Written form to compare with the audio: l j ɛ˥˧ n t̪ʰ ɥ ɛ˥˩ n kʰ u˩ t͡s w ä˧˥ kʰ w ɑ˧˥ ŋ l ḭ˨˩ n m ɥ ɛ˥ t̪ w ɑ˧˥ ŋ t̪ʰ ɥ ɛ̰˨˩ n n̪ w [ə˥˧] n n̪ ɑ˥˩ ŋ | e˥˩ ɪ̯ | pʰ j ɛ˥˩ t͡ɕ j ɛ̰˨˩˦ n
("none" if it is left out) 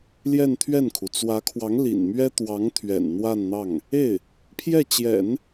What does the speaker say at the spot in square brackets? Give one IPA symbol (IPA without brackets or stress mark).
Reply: a˥˧